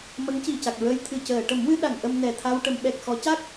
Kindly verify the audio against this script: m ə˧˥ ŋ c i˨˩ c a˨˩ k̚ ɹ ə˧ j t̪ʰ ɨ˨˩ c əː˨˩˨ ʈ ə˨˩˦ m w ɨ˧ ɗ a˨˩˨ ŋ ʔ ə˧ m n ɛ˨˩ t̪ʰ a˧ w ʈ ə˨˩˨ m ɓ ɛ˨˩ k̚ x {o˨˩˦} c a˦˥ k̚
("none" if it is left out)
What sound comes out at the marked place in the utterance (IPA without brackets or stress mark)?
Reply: ɔ˨˩˦